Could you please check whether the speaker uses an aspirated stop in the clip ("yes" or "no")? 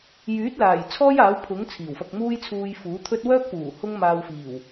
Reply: yes